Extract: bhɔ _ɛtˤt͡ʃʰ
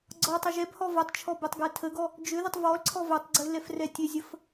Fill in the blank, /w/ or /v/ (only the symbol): v